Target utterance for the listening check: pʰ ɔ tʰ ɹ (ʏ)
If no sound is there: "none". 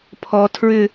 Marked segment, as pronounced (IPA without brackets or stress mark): ʏ